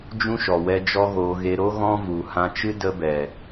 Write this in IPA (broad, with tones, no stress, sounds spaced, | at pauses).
d͡ʒ ũ˦ ʃ ɔ˨ w ɛ˧ d͡ʒ ɔ˦ ɣ oː˧ ɣ e˧ ɾ o˦ ɣ ɔ̃˦ v u˨ h ã˧ t͡ʃ ɨ˦ d ə˧ b ɛ˨